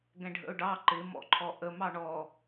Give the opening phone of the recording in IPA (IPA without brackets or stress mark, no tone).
ɡ